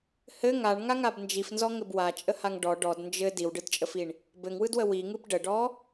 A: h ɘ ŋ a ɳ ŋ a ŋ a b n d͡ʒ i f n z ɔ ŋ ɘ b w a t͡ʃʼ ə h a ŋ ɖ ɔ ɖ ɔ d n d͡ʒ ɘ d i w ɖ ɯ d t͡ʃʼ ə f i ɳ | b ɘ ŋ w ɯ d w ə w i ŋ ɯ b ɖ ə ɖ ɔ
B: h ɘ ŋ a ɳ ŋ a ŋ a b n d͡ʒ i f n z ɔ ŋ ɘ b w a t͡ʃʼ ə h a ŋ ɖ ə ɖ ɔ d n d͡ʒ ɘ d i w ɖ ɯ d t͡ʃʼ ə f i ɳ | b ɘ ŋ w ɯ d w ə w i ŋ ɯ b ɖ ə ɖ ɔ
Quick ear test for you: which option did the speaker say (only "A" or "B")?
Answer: A